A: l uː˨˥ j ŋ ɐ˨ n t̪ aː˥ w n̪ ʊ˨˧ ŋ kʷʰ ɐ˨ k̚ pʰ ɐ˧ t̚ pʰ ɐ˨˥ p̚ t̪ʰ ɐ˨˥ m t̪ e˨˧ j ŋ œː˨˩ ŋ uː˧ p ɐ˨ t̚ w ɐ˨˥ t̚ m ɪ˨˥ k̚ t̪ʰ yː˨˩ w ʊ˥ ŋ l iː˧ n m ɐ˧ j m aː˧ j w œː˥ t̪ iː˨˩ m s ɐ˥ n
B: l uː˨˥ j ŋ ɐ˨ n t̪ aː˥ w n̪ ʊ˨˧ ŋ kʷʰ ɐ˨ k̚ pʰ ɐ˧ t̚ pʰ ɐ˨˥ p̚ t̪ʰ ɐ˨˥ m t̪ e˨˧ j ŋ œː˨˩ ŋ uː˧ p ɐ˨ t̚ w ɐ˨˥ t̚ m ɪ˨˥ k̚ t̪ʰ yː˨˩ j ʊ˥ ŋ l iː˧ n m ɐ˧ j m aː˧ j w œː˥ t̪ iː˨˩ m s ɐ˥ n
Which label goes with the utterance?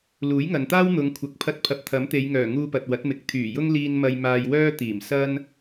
B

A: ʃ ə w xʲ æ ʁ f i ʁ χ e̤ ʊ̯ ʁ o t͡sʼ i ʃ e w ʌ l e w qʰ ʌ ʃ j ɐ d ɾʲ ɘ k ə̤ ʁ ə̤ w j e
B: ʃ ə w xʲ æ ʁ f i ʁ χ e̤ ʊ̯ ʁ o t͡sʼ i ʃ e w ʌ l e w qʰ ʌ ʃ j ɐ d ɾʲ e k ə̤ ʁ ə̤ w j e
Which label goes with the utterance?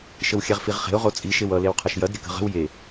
A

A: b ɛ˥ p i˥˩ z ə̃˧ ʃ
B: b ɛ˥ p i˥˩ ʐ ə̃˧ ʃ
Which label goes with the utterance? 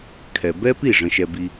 B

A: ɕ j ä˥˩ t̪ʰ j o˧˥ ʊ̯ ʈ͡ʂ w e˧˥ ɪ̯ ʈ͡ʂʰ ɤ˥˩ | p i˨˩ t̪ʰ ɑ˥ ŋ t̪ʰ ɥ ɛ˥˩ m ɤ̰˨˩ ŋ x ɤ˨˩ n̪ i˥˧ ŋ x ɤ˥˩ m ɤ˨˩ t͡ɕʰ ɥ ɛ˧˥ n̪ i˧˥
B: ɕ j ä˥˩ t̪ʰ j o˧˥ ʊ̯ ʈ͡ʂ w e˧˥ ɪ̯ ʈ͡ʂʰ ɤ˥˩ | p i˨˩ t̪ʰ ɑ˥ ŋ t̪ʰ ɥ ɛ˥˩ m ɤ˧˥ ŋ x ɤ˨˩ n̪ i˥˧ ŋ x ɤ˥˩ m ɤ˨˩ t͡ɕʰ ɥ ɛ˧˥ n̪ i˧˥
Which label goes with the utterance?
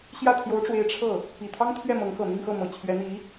B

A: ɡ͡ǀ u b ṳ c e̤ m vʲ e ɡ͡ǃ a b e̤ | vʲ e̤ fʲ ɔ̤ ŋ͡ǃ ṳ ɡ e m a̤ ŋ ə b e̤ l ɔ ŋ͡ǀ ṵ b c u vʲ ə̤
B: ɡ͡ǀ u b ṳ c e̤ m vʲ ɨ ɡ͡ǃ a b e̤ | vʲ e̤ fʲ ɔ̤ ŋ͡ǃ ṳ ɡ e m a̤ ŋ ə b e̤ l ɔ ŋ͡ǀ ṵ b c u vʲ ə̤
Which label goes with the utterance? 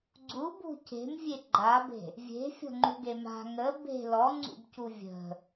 A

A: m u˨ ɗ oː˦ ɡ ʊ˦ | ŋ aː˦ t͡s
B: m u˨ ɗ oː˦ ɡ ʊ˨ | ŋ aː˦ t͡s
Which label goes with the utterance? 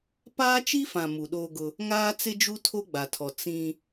A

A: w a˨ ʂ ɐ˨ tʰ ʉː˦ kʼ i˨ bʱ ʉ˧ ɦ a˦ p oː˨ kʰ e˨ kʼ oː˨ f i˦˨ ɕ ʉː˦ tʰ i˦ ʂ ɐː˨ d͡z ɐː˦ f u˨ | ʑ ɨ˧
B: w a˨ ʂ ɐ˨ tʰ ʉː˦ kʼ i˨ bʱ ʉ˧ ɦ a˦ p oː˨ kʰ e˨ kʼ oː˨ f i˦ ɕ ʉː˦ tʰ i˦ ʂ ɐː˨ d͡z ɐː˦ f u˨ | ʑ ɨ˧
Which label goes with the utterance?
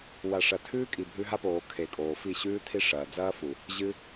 A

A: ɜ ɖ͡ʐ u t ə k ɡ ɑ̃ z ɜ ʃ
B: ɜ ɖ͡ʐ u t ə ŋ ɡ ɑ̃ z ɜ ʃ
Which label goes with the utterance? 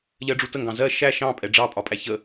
B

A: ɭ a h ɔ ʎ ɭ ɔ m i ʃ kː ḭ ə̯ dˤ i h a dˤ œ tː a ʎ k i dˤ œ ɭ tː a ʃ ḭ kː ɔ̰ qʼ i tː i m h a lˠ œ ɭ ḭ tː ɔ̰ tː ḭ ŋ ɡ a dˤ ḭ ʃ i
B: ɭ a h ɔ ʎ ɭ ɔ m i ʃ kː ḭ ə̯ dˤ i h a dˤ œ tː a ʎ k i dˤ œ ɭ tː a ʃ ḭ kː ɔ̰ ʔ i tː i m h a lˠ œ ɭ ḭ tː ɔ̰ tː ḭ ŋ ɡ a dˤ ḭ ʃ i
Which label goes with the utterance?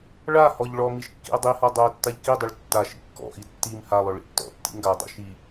B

